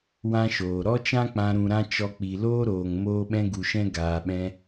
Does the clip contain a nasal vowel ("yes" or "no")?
yes